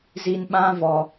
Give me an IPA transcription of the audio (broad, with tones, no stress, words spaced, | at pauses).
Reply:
zi˧nɓã˦vɔ˧